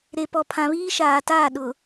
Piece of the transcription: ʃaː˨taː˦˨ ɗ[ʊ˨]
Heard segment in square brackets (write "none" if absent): ʊ˨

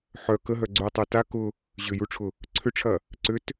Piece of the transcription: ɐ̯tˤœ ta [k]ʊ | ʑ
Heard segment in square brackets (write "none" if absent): k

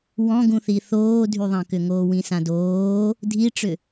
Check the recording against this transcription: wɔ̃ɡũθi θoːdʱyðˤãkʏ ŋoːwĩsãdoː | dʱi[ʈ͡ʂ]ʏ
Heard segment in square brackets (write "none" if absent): ʈ͡ʂ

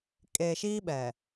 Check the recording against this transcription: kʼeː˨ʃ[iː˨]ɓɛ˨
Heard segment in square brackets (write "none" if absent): iː˦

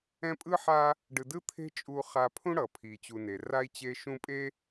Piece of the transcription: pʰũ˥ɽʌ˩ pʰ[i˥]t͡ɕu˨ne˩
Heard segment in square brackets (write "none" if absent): i˩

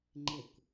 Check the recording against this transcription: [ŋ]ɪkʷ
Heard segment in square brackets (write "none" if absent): ŋ͡ǃ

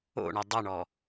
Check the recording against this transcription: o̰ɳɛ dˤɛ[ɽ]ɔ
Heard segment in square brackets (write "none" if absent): ɳ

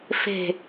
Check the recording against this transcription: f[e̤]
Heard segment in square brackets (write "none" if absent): e̤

